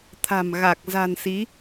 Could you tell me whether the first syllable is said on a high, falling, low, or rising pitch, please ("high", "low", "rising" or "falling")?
low